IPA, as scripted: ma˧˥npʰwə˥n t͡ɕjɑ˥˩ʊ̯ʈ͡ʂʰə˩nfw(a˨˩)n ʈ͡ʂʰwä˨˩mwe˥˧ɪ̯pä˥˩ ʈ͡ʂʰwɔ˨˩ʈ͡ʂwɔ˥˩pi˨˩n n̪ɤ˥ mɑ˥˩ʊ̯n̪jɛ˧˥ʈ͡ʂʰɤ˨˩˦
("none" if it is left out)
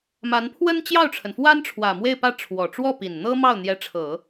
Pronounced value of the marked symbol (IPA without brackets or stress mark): a˥